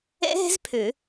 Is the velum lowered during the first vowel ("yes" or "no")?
no